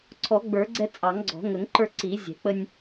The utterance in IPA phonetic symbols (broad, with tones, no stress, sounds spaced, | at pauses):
ǀʰ ɔ˨˩˦ ɡ͡b ə˞˨˩˦ ɡ͡ǀ ɛ˧ t͡sʼ ɑ˨˩˦ ŋ ɡ͡ǀ ɔ̤˨˩˦ ŋ ə˨˩˦ ŋ ǃ ə˞˧ ǀ i˨˩˦ zʲ ɛ̤˨˩˦ k͡p ə˧ nʲ